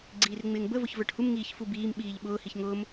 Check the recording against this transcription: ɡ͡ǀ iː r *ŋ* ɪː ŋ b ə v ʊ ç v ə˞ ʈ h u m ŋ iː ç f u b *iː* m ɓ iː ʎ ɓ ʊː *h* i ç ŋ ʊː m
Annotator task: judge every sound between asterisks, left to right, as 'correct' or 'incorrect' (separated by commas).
incorrect, correct, correct